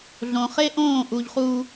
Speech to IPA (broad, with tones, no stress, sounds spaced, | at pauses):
ɮ õ˨ χ e˦ ʔ õː˦˨ ʔ u˨ ʎ χ u˨